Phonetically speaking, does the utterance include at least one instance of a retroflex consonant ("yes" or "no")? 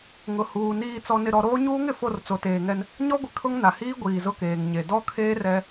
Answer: no